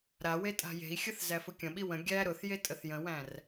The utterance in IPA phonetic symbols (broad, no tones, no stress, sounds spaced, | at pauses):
ɾ a w e tʼ a̤ j e̤ i̯ xʲ ə θ z æ f ʊ kʲ ə̃ ɓ i w ə̃ ɡʲ æ ɾ ʊ θ j e tʼ ə θ j ə̃ w æ̃ r